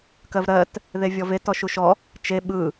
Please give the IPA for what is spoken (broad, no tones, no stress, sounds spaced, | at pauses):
k ɜ v ɾ ɜ t | ð e vʲ ɔ v e t ɔ ʃ u ʃ ɔ | t͡ʃ e ɓ ɯ